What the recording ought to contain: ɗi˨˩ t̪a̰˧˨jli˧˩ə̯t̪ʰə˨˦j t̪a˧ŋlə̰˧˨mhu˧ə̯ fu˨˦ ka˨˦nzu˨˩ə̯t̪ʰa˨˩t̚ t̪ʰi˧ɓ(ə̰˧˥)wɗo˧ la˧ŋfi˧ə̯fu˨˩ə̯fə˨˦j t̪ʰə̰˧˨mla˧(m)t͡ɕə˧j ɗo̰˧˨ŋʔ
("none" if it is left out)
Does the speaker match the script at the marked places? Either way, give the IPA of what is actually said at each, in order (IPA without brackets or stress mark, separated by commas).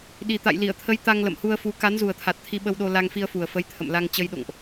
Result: ə˧, ŋ